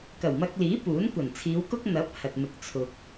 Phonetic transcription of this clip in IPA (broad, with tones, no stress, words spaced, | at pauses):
kɐ˨˩wmɐ˧k̚liː˨˥ puː˨˥nkʷɐ˨˩n t͡sʰiː˨˧wkʊ˥k̚ n̪ɐ˨˥p̚ hɐ˨t̚mɪ˨k̚t͡sʰʊ˨k̚